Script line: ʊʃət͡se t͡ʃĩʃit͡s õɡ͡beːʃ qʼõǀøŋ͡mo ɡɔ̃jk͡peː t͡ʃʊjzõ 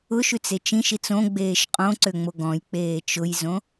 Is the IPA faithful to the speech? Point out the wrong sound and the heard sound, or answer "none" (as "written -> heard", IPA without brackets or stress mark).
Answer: ə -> ʉ